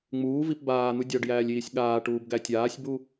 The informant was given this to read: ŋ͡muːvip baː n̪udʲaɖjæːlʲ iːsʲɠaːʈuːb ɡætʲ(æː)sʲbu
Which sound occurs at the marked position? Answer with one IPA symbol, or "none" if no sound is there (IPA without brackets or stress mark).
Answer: aː